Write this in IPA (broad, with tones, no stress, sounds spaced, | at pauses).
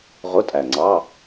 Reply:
ʁ ʊ˧˥˧ tʼ æ˨˩ ŋ͡ǀ ɑ˧˥˧